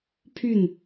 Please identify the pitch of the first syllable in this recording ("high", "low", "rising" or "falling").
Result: falling